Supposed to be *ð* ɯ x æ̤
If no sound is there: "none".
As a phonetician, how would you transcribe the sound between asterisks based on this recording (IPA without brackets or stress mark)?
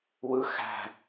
w